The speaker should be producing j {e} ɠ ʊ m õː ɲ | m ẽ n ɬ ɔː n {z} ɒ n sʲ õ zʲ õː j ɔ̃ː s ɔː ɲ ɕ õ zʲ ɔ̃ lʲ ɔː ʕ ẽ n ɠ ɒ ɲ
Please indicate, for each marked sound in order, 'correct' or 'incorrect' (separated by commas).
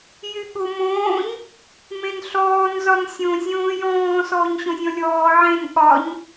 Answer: incorrect, correct